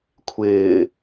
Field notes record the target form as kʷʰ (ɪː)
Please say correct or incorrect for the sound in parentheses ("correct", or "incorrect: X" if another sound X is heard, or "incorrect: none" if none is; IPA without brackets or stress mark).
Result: correct